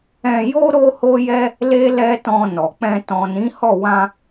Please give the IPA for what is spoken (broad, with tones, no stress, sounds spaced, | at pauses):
ɛ̃˧ j o˦ ɾ o˦ h o˦ j ɛ˦ | l e˦ l ɛ˦ t ɔ̃˧ n ɔ˨ k͡p ɛ̃˧ t ɔ̃˨ n ĩ˨˦ h ɔ˦˨ w ã˧